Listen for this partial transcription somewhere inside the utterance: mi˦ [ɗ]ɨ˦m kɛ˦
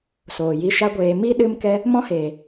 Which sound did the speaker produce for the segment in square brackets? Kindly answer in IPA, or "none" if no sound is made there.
ɗ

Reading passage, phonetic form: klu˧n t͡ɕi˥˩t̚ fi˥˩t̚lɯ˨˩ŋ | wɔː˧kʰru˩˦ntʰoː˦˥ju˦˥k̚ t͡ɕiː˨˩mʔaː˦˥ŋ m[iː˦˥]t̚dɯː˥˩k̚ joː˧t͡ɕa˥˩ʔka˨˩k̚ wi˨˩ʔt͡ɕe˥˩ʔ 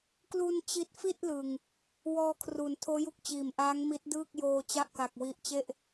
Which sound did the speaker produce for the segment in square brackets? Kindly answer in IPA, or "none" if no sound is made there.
i˦˥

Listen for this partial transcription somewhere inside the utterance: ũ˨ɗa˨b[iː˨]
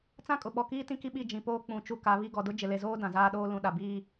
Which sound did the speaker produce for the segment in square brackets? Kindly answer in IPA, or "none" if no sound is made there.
iː˦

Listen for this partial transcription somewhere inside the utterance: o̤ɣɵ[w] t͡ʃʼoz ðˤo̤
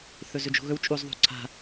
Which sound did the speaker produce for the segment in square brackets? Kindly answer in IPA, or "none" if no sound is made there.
w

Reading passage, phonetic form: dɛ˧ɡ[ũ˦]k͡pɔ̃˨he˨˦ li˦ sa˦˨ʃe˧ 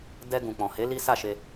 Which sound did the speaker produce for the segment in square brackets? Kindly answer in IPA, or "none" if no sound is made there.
ũ˨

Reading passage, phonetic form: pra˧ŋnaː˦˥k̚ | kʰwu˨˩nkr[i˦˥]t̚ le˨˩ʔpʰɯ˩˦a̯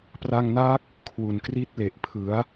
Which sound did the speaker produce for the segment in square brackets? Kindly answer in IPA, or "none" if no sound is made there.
i˦˥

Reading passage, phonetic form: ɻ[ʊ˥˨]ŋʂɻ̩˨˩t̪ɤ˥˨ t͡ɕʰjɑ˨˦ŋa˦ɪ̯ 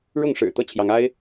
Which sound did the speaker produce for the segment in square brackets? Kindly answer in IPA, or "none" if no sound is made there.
ʊ˥˨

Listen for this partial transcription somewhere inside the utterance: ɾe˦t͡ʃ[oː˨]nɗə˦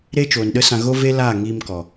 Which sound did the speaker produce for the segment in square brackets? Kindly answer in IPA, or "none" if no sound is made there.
oː˨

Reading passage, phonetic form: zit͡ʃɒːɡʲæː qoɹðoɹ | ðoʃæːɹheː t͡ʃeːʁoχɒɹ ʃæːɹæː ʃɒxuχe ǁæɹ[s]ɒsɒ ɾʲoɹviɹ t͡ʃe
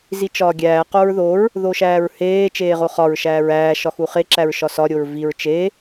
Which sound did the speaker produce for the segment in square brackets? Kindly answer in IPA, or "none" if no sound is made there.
ʃ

